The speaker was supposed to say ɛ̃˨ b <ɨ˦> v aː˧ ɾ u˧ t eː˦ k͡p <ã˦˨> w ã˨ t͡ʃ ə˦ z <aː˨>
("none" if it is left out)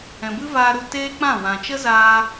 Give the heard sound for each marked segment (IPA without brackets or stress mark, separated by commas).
ɨ˦, ã˦˨, aː˧